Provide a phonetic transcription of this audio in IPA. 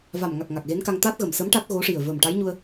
v a˨˩ m ŋ a˨˩ k̚ ŋ a˨˩ k̚ ɣ e˧˥ n k a˧ ŋ t̪ a˦˥ t̚ ɣ ə˨˩ m s ə˧˥ m ʈ a˦˥ t̚ ɣ o˧˥ ʂ i˨˩ ə̯ v ə˨˩ m ʈ a˧˥ j ɲ u˧ ə̯

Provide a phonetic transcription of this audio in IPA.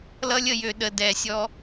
l ʌ˧ lʲ ə˨ j ø˧ ɗ ə˨ d ɛ˨ sʲ ɔ˧

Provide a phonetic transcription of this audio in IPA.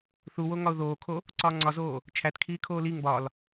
θ u w o ŋ ɒ ʊ̯ ð oː kʰ o | ǀ ɒː ŋ͡ǀ ɒ z oː | t͡ʃʰ æ t kʰ iː kʰ oː l i ŋ b ɒ l

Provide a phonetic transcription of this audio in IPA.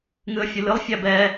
ŋ ɨ ə̯ fʲ ɨ l ɨ lˠ fʲ æ b ɛ

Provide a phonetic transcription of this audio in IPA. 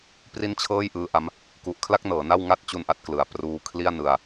p r i˥˩ n t͡ɕʰ ɤː˥˩ j ʔ ɯː˦˥ ʔ a˦˥ m | k u˨˩ ʔ kʰ l a˥˩ k̚ n ɤː˩˦ n a˥˩ w ŋ a˥˩ t̚ t͡ɕ u˧ n ʔ a˦˥ t̚ k l ɯ˨˩ a̯ p r uː˧ kʰ l i˥˩ a̯ n ɯ˧ a̯

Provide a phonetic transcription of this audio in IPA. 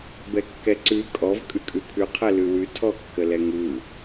b ɛ kː ɛ ǀ ʉ kʼ ɔ v kʼ ʉ kʼ ʉ pʰ ʉ qʰ ɛ l ʉ w ʉ tʰ ɔ kː ə l ɛ ŋ ɯ

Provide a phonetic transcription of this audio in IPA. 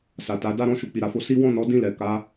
s a˨ t a˨˦ d a˧ ɾ ɔ̃˧ ʃ u˨ k͡p i˨ ɾ a˨ f o˧ s i˦ w ɔ̃˦˨ n ɔ˨˦ d ĩ˦˨ l ɛ˨ k a˨˦

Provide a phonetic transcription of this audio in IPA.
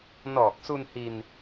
n ɔː˨˩ k̚ s u˧ n h i˧ n

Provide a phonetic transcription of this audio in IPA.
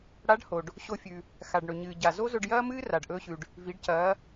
ɽ a˧˥ ɖ h o˩ ɖ | ɕ o˧ fʲ ʉ˩ | x a˩ ɖ ɳ ɵ˩ ɲ ɨː˩ ɟ a˩ z o˥ z ɵ˧ ɖ j ɐː˥ m ɨː˥ r a˩ ɖ ʔ ɵː˧ ɕ ʉ˩ ɖ | v i˩˧ ɖ c ɐː˩˧

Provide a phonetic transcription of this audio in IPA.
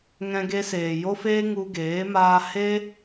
ŋ ɛ̃˧ ɡ e˧ s eː˨ j o˦ f eː˦ ŋ u˧ ɡ eː˨˦ m aː˧ h e˦

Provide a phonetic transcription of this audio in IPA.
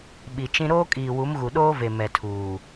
ɓ i˨ t͡ʃ ĩ˦ ɾ oː˦ kʼ iː˨ w u˨˦ m ɣ u˨ ɗ oː˦ v e˨ m ɛ˨ tʰ uː˨

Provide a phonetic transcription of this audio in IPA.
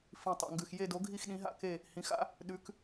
f ĩ˨˩ tˤ o̰˨˩ ŋ ɡ ʉ˨˩ x j e˥˧ d o˨˥ ɡʱ i˥˧ x ɗ ĩ˨˥ ɦ a̰˥˧ k e˥˧ | h ĩ˨˥ x a̰˨˥ | ɗ ʉ˨˥ k

